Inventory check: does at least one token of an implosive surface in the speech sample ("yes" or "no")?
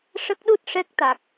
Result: yes